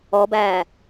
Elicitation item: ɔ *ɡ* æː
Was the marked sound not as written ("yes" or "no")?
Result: yes